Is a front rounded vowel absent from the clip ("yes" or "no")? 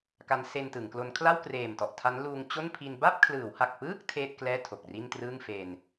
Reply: yes